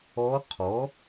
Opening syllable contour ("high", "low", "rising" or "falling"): rising